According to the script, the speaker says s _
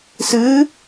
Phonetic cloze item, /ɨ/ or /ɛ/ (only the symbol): ɨ